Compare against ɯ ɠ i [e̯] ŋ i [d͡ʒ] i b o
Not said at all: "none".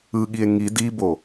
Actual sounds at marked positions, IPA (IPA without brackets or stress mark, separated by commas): e̯, d